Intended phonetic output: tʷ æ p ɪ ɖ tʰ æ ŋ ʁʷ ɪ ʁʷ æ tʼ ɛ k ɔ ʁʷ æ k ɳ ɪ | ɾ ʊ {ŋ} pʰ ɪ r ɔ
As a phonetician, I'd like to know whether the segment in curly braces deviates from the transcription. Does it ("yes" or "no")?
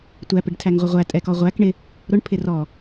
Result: yes